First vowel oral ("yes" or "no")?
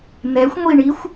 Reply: yes